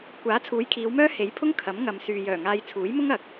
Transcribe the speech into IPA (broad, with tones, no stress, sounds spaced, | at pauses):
kʷ aː˨˥ t͡sʰ uː˨˥ j kʰ iː˨˧ w m œː˥ h e˨˥ j pʰ ʊ˥ ŋ kʰ ɐ˨˥ m ŋ ɐ˨ m s yː˨ j œː˨˩ ŋ aː˧ j t͡sʰ uː˨˥ j m ʊ˥ ŋ ɐ˨˥ k̚